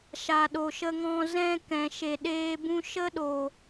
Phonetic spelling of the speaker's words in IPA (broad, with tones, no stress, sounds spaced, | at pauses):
ʃ a˨ ɗ o˨ ʃ ə˧ ŋ ɔ̃˧ z ɛ̃˧ k ɛ̃˨ ʃ e˨ ɗ eː˧ b ũ˧ ʃ ə˦ ɗ o˨